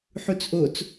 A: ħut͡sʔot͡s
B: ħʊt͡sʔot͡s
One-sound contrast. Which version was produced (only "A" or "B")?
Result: A